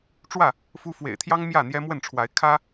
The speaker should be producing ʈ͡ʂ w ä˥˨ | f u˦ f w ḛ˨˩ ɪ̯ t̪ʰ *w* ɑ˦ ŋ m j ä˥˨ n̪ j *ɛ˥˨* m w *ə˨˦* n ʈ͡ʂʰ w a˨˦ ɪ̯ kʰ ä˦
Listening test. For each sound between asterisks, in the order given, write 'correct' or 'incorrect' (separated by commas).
incorrect, incorrect, incorrect